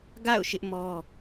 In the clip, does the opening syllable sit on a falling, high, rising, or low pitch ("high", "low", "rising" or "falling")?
falling